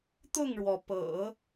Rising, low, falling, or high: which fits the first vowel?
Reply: falling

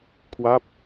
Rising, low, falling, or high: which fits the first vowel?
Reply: falling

